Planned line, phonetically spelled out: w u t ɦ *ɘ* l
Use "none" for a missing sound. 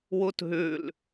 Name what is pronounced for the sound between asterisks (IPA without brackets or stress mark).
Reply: ʉ